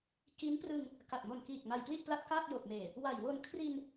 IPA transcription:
ki˦˥nprɯ˧ŋ | ka˨˩t̚mo˨˩nkiː˨˩k̚ ma˧jpli˥˩ʔpla˥˩t̚ kaː˥˩k̚jo˨˩k̚meː˨˩ | wa˨˩jwo˧n kʰri˧n

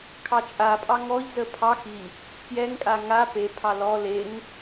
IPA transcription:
kʰɑt͡ʃʼapʼɑ ŋɔʎzə pʰɑx i | pjɛŋkʼa ŋa pepʰɑ lɔ leŋ

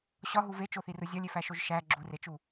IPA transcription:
ɕɒɦu vet͡ʃoθiru zʲɒlʲefæʃoʒ ʃæ ɡ͡ǁuret͡ʃu

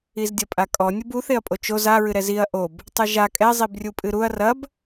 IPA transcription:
izdʲɐpʼakʼɔ nʲubuθeɐ̯pʼo t͡ʃoz a ɹɨɾɛziɐ̯ ʔob | tˤɨʒa kʼɛ zˤibrʲupʼɨɾuɐ̯ rɐb

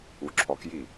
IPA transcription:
uǁʰɔkji

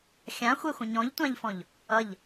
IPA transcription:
xʲãxʷɛxʷə̃ ɲɔ̃ʎtʷãʎfɔ̃ʎ | ʌʎ

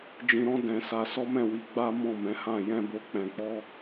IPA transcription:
d͡ʒĩ˧ɾɔ̃˦ dɛ̃˧sa˧ sɔ˦mɛ̃˦˨wi˧ ɡ͡ba˦ mɔ̃˦˨mɛ̃˨˦hã˦˨ jɛ̃˧ bo˧k͡pɛ̃˧k͡pɔ˦

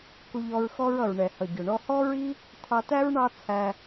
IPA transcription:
ku˧ʎɔ˧ɹxɔ˥ɹʌ˩ɹ ɳɛ˩hʌ˩ɟʊ˩ɳɔ˧ hɔ˥ɹi˥ | tʰɑ˧tæ˥ɹ ɳɑ˥t͡sʰæ˧

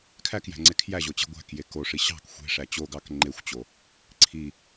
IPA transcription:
kʰækjæ̤ŋ͡ǀe kʰjæʑot͡ɕe̤ ɡʷæ̤kje koʂi ɕɑ̤k xʷe̤ʂæ t͡ɕoɡɑk ŋ͡ǃexʷt͡ɕo | ǀʰi

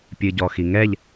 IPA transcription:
pʲɨɟɔxiŋɛʎ

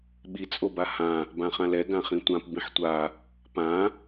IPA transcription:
ɓit͡sʼoba hã | bãχãlɛ ɡãχĩtʷãp bĩħtʷa | pã

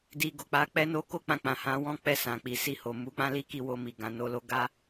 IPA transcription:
di˧ ɡo˨k͡pa˧k͡pɛ˦ no˦ko˦k͡pã˧ k͡pã˨hã˨˦ wɔ̃˦k͡pɛ˦˨ sã˨k͡pi˨ si˧ho˨ mu˨˦k͡pã˦ li˦ki˦˨wo˧mi˨ ɡã˨no˨˦lo˦ ɡa˦

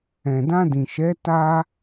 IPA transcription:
ɛ̃˨dã˧dĩ˨ʃɛ˨˦ ta˧

